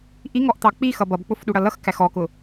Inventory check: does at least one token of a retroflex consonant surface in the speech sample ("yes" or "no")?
yes